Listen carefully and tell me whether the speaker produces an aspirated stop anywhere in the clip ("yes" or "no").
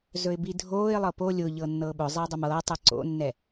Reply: no